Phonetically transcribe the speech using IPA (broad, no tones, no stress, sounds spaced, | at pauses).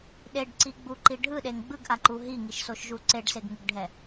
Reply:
ɗ e ɖ ǀ i ɡ͡b u ǃ i ɖʱ ɯ ɗ e ŋ ɡ͡b ɯ ɡ ʔ a ǃ u ɦ i ŋ i ʃ s o ʃ ʒ u ǀ e ɖ s e ɡ ŋ ɯ ɡ ɖʱ ɛ